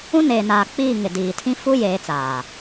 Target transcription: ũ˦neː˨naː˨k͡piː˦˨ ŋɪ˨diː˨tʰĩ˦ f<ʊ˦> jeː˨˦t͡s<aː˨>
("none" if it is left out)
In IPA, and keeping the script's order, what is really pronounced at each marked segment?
u˦, aː˨

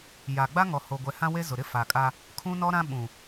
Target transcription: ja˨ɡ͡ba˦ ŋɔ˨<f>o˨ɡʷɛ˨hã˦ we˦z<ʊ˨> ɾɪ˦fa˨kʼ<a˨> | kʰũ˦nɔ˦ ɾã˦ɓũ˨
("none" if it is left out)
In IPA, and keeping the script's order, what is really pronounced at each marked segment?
h, ʊ˨, a˦

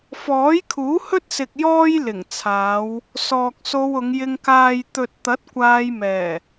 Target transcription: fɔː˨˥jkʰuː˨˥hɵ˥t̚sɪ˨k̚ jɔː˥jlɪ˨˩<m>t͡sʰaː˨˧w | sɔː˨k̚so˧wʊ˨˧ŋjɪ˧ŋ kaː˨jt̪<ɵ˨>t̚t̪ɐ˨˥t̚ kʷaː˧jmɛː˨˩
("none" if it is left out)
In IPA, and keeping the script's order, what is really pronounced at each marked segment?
ŋ, ɵ˨

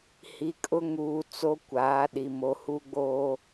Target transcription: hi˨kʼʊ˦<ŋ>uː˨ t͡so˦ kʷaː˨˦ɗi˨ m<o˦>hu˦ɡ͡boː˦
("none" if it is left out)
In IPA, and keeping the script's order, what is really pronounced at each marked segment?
ŋ, o˨

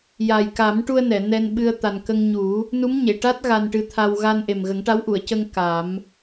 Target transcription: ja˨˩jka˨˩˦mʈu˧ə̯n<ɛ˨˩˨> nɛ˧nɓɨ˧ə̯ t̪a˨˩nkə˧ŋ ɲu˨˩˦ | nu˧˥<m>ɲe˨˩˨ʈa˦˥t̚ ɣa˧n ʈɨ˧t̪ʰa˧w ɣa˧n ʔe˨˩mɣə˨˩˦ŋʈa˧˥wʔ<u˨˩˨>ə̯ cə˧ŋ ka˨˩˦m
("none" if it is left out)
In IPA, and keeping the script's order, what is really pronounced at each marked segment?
ɛ˨˩˨, m, u˨˩˨

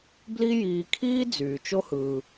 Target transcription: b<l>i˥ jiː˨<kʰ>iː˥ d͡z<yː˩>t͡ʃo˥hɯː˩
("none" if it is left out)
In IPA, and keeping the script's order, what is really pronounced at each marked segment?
l, kʰ, yː˩

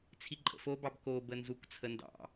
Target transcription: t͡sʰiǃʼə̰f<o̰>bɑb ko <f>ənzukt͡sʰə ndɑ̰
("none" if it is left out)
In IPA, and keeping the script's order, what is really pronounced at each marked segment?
o, b

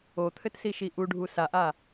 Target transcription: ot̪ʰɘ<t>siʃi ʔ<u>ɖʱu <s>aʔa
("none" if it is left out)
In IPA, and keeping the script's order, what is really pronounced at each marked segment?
t, u, s

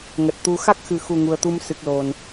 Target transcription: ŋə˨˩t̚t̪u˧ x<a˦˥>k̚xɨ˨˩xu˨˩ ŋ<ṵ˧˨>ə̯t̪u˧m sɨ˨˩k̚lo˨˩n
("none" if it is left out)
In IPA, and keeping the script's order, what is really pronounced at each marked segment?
a˦˥, u˨˩

